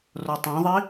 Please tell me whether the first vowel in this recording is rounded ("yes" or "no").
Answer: yes